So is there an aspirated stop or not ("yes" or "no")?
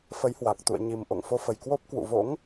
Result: no